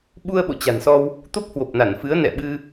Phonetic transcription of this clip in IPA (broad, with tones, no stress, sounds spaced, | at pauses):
ɓ u˧ ə̯ ɓ o̰˧˨ t͡ɕ a̤˨˩ n s ɔ˧ w | t̪ o˦˥ p̚ h w o˨˩ p̚ n a˧˩ n f ɨ˨˦ ə̯ n ɛ̰˧˨ ɓ ɨ˧